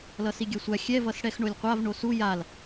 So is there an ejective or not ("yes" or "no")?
no